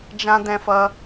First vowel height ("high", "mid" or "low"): low